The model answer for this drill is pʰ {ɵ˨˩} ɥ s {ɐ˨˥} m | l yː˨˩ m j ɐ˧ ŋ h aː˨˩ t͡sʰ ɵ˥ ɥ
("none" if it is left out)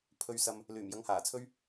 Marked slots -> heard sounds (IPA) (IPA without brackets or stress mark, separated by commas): ɵ˧, ɐ˧